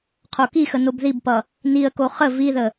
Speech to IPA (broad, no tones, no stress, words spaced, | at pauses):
qʰokixə nobðibpʌ | niə̯ko χə viðə